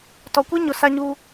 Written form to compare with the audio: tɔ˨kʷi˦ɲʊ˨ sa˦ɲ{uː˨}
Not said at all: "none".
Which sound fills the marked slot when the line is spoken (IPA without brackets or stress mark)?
uː˦